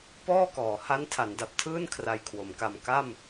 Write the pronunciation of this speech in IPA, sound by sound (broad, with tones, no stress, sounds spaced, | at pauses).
p ɔː˥˩ k ɔː˩˦ h a˦˥ n tʰ a˩˦ n d a˨˩ p̚ tʰ ɯː˥˩ n kʰ r a˧ j kʰ w o˩˦ m k a˧ m k a˥˩ m